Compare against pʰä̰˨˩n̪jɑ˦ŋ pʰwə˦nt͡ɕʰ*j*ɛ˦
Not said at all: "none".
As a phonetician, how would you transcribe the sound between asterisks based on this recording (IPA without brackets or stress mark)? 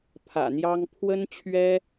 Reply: ɥ